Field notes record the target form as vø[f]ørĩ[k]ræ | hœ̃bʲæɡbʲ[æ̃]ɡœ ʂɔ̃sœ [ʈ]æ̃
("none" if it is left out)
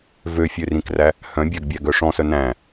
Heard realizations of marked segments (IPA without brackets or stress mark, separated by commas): fʲ, k, æ, n